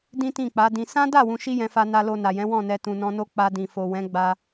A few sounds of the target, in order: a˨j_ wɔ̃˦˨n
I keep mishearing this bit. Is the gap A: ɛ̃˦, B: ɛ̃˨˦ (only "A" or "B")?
B